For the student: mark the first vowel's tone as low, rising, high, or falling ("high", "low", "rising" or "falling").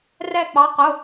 falling